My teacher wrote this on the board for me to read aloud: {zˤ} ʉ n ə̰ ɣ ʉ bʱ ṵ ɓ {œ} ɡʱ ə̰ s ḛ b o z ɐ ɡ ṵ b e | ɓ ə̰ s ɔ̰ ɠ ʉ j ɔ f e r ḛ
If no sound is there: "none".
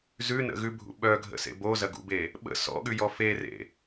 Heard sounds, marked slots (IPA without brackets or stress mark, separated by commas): z, œ